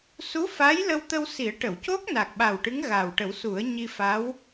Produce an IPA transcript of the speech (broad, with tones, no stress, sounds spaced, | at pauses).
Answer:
s u˧˥ f aː˧˥ j l ə˧ w t̪ ə˧ w s i˨˩˦ ə̯ ʈ ə˨˩˨ w c o˦˥ k̚ n a˨˩ k̚ ɓ a˨˩ w ʈ ɨ˧˥ ŋ ɣ aː˨˩ w ʈ ə˨˩˦ w s u˨˩˦ ə̯ ɲ i˧ f a˧˥ w